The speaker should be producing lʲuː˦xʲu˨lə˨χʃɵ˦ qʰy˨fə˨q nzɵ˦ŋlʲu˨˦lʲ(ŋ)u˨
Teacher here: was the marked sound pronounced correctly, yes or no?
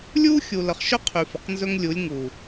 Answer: yes